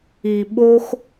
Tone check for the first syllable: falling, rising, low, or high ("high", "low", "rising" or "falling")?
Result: low